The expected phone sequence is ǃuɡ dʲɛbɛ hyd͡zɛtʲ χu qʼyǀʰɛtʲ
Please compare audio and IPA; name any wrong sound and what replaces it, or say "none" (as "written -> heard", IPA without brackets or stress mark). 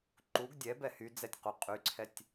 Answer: χ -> q